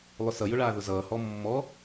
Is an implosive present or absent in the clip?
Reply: absent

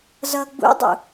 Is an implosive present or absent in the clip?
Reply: absent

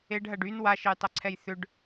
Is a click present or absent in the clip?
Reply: present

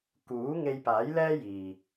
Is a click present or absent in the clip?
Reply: absent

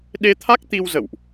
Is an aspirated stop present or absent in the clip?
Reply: present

